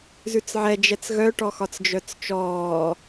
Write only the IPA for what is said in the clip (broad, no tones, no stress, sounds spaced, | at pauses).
z ʉ t͡s ʕ ɛ d͡ʒ ɛ t͡s ɣ œ ʈ ɔ x ɒ t͡s d͡ʒ œ t͡s t͡ʃ ɔː